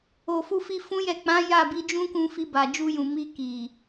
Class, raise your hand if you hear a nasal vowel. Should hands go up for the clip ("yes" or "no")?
yes